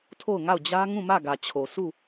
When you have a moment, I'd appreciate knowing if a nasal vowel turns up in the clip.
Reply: yes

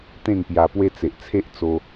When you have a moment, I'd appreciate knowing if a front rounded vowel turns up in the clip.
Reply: no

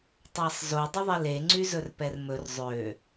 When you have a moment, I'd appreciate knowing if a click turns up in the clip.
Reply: yes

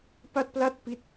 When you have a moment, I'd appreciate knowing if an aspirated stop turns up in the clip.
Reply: no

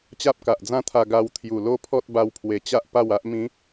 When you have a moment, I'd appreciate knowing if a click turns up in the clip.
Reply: no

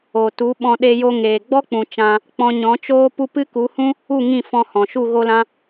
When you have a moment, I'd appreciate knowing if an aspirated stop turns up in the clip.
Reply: no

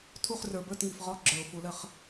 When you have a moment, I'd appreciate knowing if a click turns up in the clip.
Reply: yes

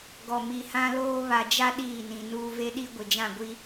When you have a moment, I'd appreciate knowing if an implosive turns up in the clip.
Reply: yes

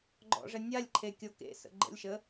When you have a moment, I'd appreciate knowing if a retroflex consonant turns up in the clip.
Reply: yes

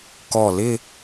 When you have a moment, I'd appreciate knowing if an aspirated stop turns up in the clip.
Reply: no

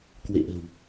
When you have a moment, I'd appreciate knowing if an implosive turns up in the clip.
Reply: no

